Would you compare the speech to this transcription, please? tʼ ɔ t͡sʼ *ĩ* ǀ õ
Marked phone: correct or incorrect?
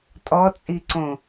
incorrect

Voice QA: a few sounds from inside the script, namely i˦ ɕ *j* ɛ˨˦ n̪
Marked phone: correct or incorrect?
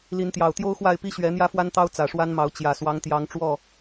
incorrect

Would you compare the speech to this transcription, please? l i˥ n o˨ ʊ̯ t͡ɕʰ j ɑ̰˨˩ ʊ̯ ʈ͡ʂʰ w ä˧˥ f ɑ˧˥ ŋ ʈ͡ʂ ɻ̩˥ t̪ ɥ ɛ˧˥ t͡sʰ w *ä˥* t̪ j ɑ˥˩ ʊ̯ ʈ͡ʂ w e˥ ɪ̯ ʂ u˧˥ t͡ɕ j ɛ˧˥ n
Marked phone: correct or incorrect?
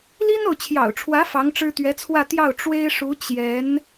incorrect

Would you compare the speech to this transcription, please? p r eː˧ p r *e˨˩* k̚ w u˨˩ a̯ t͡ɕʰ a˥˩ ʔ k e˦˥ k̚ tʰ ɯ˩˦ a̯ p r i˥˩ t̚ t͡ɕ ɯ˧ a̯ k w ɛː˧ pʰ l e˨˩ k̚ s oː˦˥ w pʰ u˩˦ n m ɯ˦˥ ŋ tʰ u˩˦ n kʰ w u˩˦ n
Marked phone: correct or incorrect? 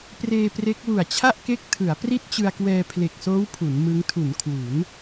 incorrect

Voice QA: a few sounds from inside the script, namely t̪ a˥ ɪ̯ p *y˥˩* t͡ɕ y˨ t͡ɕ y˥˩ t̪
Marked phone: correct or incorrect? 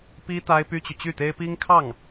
incorrect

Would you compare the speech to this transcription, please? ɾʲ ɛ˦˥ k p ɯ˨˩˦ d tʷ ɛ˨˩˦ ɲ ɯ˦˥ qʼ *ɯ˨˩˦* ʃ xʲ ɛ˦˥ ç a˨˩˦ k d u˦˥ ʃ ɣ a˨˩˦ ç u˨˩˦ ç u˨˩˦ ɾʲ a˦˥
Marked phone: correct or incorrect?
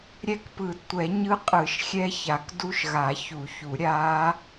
correct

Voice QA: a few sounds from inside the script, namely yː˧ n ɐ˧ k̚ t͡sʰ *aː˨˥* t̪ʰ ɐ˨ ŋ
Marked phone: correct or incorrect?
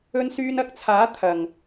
correct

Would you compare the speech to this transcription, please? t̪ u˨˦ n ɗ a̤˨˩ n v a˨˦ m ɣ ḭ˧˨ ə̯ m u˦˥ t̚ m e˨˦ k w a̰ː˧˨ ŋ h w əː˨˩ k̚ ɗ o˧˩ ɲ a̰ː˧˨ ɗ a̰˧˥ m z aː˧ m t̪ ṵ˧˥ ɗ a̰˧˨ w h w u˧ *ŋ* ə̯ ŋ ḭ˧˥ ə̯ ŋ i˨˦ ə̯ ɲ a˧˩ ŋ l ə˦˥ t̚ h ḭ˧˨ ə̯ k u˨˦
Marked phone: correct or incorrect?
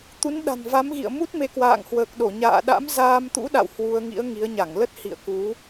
incorrect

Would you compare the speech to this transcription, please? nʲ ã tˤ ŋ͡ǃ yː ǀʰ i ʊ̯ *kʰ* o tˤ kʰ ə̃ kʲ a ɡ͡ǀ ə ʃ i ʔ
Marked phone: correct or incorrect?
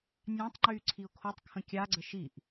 correct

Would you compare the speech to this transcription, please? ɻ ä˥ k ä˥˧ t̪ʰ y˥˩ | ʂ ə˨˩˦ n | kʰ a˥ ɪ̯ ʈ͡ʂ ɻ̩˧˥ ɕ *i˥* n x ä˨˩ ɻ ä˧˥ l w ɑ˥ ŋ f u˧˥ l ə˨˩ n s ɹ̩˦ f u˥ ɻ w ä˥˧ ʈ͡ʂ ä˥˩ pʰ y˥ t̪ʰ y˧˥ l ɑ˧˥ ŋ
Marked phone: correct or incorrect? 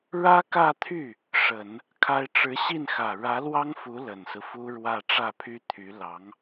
incorrect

